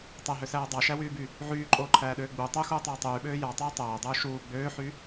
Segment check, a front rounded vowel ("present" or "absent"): present